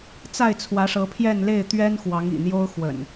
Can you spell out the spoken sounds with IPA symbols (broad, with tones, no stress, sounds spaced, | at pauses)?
t͡s a˥˨ ɪ̯ t͡sʰ w ä˨˦ ʂ ɤ˨˦ pʰ j ɛ˥˨ n l e˥˨ ɪ̯ t̪ ɥ ɛ˦ n x w ɑ˨˦ ŋ ḭ˨˩ n̪ j o˦ ʊ̯ x w ə̰˨˩ n